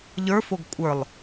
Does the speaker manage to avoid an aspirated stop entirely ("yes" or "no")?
yes